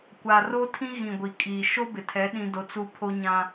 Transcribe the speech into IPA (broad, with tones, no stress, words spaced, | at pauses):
kʷa˨ro˦ tʰĩ˦ɣĩ˨ ɡʷi˨kʼiː˨ ʃo˦bɪ˨tʰɛ˨˦ ɗĩ˦do˦t͡su˦ pʰo˦ɲã˦